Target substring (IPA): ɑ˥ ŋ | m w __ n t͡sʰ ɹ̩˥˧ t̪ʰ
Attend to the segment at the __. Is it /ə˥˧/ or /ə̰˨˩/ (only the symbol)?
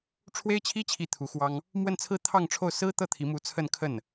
ə˥˧